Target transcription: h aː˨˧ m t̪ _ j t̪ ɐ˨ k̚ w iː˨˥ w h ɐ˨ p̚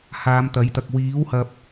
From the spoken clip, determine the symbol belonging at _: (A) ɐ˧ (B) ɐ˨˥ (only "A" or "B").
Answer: B